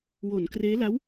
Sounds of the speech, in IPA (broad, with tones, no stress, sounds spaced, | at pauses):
w o˩˦ n k r eː˦˥ l a˦˥ w